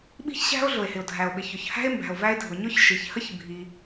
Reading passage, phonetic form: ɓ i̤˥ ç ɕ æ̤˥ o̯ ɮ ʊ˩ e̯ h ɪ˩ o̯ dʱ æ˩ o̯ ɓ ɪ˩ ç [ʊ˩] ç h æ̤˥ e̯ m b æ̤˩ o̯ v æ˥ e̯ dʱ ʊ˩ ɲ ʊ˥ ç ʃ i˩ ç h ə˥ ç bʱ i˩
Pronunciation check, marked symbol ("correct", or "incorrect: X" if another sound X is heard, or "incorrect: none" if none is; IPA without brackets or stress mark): correct